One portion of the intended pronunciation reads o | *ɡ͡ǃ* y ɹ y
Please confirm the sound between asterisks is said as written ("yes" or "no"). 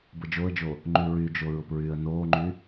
no